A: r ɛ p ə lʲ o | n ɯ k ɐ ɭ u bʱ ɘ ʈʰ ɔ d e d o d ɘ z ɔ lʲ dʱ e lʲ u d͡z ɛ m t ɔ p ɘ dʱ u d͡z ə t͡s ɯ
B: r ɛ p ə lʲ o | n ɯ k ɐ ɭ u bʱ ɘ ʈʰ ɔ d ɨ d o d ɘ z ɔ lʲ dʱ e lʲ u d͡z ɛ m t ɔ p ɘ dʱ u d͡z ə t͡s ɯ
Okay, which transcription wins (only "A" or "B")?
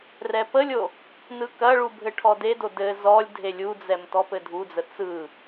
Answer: A